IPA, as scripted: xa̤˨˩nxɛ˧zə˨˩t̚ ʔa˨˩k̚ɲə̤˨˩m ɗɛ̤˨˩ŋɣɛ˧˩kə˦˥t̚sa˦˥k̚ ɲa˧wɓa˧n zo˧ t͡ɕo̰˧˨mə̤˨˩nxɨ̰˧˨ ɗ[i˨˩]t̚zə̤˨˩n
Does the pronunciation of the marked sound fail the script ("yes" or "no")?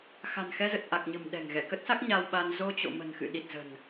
no